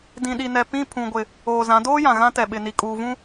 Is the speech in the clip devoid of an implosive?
no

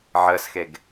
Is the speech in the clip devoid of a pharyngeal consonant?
no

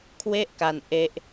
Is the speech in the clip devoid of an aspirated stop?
no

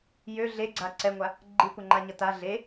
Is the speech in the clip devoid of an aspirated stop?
yes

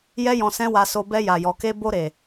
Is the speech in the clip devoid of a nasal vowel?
no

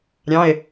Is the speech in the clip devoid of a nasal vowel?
no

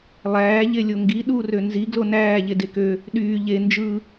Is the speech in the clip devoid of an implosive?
no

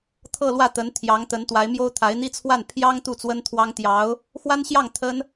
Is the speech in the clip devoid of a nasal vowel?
yes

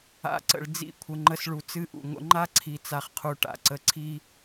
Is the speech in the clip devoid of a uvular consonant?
no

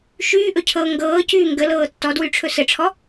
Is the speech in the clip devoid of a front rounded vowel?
no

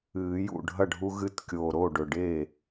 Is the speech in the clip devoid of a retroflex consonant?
no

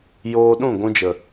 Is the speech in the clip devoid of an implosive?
no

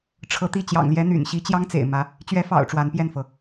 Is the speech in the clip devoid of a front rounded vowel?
no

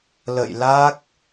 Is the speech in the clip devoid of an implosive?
yes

